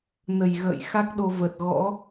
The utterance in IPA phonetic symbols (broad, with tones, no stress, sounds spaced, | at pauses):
n ə˨˩ j ɣ ə̰ː˧˨ j x a˦˥ k̚ ɗ o˧ v ə˨˩ t̚ ɣ ɔ̰˧˥